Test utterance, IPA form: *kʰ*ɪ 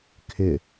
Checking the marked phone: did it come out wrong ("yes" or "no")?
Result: no